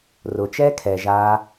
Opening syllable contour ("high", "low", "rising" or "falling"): low